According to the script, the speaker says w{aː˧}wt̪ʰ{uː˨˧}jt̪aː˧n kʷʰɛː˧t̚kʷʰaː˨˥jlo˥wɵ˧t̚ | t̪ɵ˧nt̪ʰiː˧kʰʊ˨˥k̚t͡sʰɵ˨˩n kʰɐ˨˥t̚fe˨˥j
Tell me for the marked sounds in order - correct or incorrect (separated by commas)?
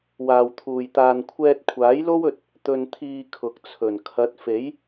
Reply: incorrect, incorrect